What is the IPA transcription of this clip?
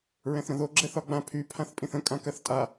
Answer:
ɹ ɛ̃ θ ɾ ə̃ ð o ɡ͡ǁ ɛ θ ɒ ɡ͡b ã pʰ y pʰ ã θ pʼ ĩ θ ə̃ kʼ ã k ɜ θ tʼ a

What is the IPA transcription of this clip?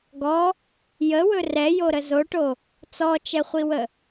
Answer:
ɡ ɔ | j ə w ɵ r ɛ j o ɾ ə z o ʈ o | t͡s ɔ t͡ʃ ɛ χʷ i w ə

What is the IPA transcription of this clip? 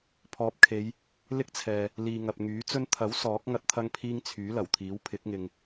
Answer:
pʰ ɔː˨ p̚ kʰ e˨˧ j | l ɪ˥ k̚ t͡sʰ ɛː˨ | l iː˨ ŋ ɐ˨ p̚ ŋ yː˨˥ t͡s ɵ˧ n t̪ʰ ɐ˨˥ w s ɔː˨˥ k̚ ŋ ɐ˥ t̚ t̪ʰ ɐ˥ ŋ pʰ iː˥ ŋ t͡sʰ yː˨˥ l ɐ˨˩ w t̪ʰ iː˨˥ w pʰ ɪ˨˥ k̚ ŋ ɪ˨ ŋ

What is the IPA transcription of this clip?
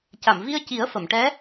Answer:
c a˨˩˨ m v i˧ ə̯ c i˨˩˦ ə̯ f ə˨˩˨ m ʈ ɛ˧˥

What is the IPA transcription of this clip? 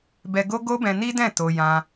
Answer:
b ɛ˧ ɡ o˦ ɡ o˦ b ɛ̃˧ n i˦ d ɛ̃˦˨ t o˧ j ã˧

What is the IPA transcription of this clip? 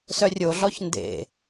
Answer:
s œ rʲ o ɮ ɔ ç n d ḛ

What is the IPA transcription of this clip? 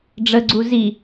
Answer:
ɖ͡ʐ ə ɡ͡ǀ u z i

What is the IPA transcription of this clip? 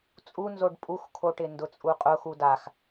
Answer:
t͡sʼ u n z o ɖ pʼ u x kʰ o ʈ ɪ n d ʊ t͡sʼ u qʼ ʊ x u d a x

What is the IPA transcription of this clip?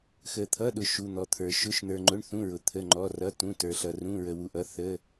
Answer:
x ə˧ t̪ʰ ʌ˧˥˧ ɗ ʊ˧ ʃ u˧˥˧ n̪ ɔ˧ t̪ʰ ə˞˧ ʃ ʊ˧˥˧ ʃ n̪ ə˞˧ ŋ͡ǃ ʊ˧˥˧ ɳ θ ũ˧˥˧ ɹ ʊ˧ t̪ʰ ə˧˥˧ ŋ͡ǃ ɔ˧˥˧ r ʌ˧˥˧ t ũ˧˥˧ t ə˞˧ ɬ ʌ˧ r ũ˧˥˧ ɹ ə˧ w u˧ ʔ ʌ˧˥˧ θ ə˧˥˧

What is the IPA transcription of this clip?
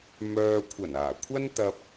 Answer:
m œː˨ kʷʰ ɐ˨˩ n aː˨˩ kʷʰ ɐ˥ n t̪ ɐ˧ p̚

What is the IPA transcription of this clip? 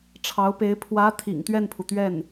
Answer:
ʈ͡ʂʰ ɑ˧˥ ʊ̯ p e˧˥ ɪ̯ pʰ w ä˧˥ t̪ʰ ḭ˨˩ ŋ t̪ ɥ ɛ˥˩ n pʰ u˩ t̪ ɥ ɛ˥˩ n

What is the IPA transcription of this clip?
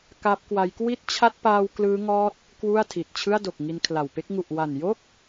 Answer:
k a˦˥ p̚ k w a˦˥ j k w i˦˥ t̚ t͡ɕʰ a˦˥ t̚ p aː˧ w k l ɯː˦˥ ŋ ɔː˦˥ t̚ | k w u˥˩ a̯ tʰ i˨˩ t̚ t͡ɕʰ ɯ˥˩ a̯ d o˨˩ k̚ ŋ i˧ n kʰ l a˨˩ w p e˥˩ k̚ ŋ u˨˩ ʔ w a˨˩ n j o˥˩ k̚

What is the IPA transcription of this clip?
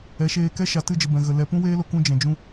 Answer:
ɛ˨˦ ʃ eː˧ k ɛ˦ ʃ a˨ t ɨ˦˨ d͡ʒ ə˨ b ɛ̃˨ ɣ ə˨ l ɛ˨ p ũ˦ w eː˦ l o˧ k ũ˧ d͡ʒ ɛ̃˨ d͡ʒ ũ˧

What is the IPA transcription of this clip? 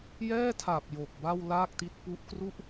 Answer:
j ɛː˥˩ tʰ a˨˩ p̚ j o˨˩ k̚ b a˥˩ w l aː˥˩ k̚ t i˦˥ t̚ p u˦˥ ʔ k r u˥˩ ʔ

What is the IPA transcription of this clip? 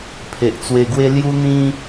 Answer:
pʰ e˨ ʔ t͡s w e˧ ɡ w e˦ l j u˦ n̪ ĩ˦

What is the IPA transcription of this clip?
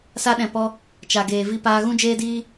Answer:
s a˧ ɗ ɛ̃˨ p ɔ˧ | t͡ʃ a˨ ɡ eː˨ v i˧ p aː˧ ɣ ũ˦ d͡ʒ eː˦ d iː˦

